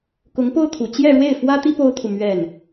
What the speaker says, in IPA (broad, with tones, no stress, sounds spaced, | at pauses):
k ʊ˧˥ ŋ p o˥ ʊ̯ t̪ʰ u˨˩ t͡ɕ j ɛ˥˧ ɻ w e˥˩ ɪ̯ f w ä˥ t̪ i˥ p o˥ ʊ̯ t̪ʰ u˨ m ɥ ɛ˥˩ n